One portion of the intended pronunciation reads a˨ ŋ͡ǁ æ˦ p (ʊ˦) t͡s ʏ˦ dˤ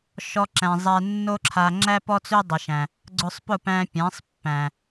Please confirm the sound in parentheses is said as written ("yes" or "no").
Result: no